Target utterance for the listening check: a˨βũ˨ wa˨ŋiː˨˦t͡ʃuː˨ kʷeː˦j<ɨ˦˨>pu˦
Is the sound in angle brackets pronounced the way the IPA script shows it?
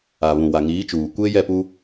no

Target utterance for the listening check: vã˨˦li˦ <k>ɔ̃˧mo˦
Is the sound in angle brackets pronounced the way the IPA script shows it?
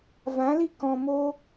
yes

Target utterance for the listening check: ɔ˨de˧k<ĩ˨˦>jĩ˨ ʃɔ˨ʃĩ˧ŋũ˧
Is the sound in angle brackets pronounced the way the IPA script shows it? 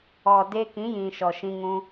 yes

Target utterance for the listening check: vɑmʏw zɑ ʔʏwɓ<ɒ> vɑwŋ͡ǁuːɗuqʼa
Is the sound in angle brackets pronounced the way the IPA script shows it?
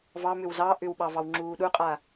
no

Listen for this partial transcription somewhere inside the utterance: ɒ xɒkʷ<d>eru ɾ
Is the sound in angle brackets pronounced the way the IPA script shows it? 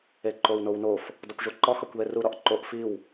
no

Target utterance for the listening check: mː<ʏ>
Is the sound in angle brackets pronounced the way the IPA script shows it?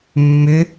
yes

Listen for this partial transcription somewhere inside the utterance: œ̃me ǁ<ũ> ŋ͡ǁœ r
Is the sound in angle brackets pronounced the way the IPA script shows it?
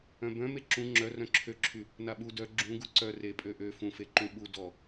yes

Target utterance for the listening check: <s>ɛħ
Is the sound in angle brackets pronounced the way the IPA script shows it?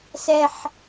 yes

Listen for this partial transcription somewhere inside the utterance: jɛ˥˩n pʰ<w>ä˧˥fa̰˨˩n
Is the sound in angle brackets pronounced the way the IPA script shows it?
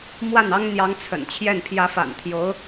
no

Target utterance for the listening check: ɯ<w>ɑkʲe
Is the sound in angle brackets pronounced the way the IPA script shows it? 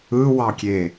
yes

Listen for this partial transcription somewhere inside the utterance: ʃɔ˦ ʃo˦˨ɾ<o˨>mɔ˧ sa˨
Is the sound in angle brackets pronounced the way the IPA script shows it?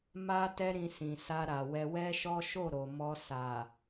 yes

